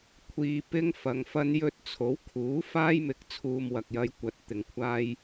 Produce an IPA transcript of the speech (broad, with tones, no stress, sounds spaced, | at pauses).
kʷʰ iː˧ p ɪ˥ ŋ f ɐ˨ ŋ f ɐ˥ n j ɵ˧ t̚ t͡sʰ o˨˥ w kʰ uː˨˥ f aː˥ j m ɪ˨˥ k̚ t͡sʰ uː˧ m w ɐ˨ k̚ j ɐ˧ j kʷ ɐ˨˥ t̚ t̪ ɪ˨ ŋ kʷʰ aː˥ j